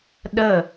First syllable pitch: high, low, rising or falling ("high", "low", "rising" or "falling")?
falling